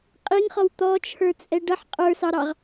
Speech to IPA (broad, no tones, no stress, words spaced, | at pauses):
qʼiŋχɔw t̪ɔt͡ʃʰə˞t͡sʼɛ ɖʌħ qʼə˞sɑɾɑʁ